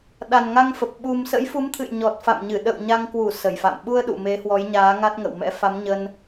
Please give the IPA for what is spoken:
ɗ a˨˩ n ŋ a˧ ŋ f ə˨˩ p̚ ɓ u˨˩ m s ə̰˧˥ j f u˨˦ m t̪ʰ ɨ̰˧˨ j ɲ ɔ˨˩ t̚ f a̰˧˨ m ɲ ɨ˧˩ ɗ ə̰˧˨ w ɲ a˧ ŋ k w u˧˩ s ə˧˩ j f a̰˧˨ m ɓ u˧ ə̯ ɗ ṵ˧˨ m e˨˦ h w ɔ˨˦ j ɲ aː˨˦ ŋ a˦˥ t̚ ŋ ə̰˧˨ w m ɛ̰˧˥ f a˨˦ m ɲ ə˧ n

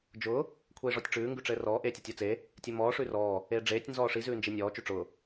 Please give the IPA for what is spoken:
d͡ʒ ʊː | kʷʰ eː ʐ ɔ tʲ ʈ͡ʂ ʉː ŋ ɡ ʉ ʈ͡ʂ ɘː r ɔː ʔ eː tʲ e tʲ ɔ t͡s e | tʲ ɘ m ɔː ʂ ʉ r ɔː | eː ɖ͡ʐ eː tʲ n z ɔː ʂ i z ʉː n d͡ʒ i nʲ ɔː t͡ʃ ʉ ʈ͡ʂ ʊː

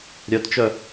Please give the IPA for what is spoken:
ɾʲ œ t t͡ʃ œ

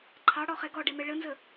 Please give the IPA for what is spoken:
ǃʰ ɑ ɽ ɔ χ ɛ ɡ ɔ ɖ ɛ m ɛ ɭ ə n z ə

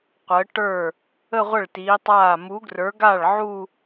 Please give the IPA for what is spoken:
qʷ əː˨˥ ʈ ə˞˥˩ | ə˥˧ ʁʷ ə˥˩ ɭ t iː˨˥ tˤ aː˥˩ m u˨˥ ɡ r ə˞˨˥ ɡ a˥˩ ɭ ʕ u˥˧

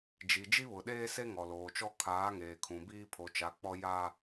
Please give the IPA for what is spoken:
d͡ʒ i˨ d͡ʒ i˦ β ʊ˨ ɗ eː˦ s e˦ ŋ ɔ˨ l oː˨ t͡ʃ ɔ˦ kʰ aː˨˦ ŋ eː˨ kʰ ũ˨ b iː˦ pʰ o˨ t͡ʃ a˨˦ k͡p ɔ˦ j a˦

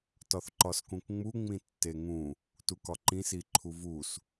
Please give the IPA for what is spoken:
t ɒ θ ǃ ɒ s k ũ k ŋ͡m u ŋ͡m ĩ tː e ŋ ũ | t u k ɒ ǃ ĩ s i ǃʰ u v u s

